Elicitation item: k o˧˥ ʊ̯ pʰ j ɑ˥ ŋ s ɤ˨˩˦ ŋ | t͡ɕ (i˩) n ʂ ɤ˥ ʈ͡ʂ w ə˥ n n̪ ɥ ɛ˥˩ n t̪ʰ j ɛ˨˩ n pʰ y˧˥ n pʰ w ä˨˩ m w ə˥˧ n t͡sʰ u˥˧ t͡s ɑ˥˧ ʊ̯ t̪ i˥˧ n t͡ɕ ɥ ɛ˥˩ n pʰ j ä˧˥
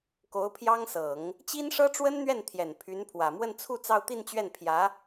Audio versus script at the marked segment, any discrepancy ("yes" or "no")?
yes